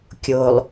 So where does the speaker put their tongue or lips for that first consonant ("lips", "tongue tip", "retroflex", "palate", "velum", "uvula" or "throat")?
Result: velum